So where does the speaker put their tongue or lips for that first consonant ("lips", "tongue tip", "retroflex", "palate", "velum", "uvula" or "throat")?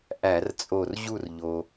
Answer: throat